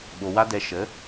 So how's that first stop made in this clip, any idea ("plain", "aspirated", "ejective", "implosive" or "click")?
implosive